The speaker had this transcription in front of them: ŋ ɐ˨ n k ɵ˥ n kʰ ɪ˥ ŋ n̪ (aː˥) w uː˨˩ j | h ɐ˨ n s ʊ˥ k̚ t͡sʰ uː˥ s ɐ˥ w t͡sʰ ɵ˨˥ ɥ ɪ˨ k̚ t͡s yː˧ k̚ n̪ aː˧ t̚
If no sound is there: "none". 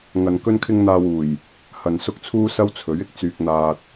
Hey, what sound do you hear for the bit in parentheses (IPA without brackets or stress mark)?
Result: aː˧